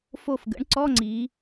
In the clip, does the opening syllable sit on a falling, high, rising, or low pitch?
falling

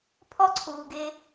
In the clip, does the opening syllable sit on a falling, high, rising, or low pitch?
high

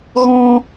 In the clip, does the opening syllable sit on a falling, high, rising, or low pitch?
high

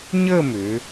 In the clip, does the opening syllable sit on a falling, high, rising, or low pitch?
falling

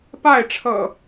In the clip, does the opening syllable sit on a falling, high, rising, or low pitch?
falling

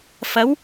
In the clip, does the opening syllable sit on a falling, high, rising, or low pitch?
rising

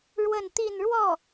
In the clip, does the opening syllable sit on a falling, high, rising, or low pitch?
falling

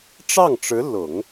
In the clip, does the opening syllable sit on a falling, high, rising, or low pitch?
falling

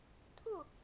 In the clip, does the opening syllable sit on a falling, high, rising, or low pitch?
falling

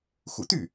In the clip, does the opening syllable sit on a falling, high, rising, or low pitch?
low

